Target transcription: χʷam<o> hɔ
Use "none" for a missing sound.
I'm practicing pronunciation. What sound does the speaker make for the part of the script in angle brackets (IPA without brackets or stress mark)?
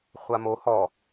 o